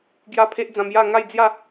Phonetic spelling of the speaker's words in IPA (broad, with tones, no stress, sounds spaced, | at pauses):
ɡ j a˦ pʰ e˦ ʔ d͡z ã˧ m j a˥˧ ŋ a˥˧ j d͡z j a˥˧